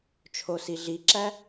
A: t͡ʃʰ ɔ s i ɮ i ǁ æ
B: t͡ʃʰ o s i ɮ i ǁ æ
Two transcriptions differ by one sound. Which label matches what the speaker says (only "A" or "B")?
B